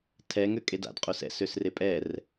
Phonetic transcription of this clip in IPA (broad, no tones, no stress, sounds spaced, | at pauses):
tʰ ɛ ŋ ø kʼ e d a̰ d qʼ o s ɛ̰ s ø s r e pʼ ɛ r